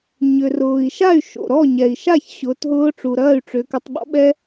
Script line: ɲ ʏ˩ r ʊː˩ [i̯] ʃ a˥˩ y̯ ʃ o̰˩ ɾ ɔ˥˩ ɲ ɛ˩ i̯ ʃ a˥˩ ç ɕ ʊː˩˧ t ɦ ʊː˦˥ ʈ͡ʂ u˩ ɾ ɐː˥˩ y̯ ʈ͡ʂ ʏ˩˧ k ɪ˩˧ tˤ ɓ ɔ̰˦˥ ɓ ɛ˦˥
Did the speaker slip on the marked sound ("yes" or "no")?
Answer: no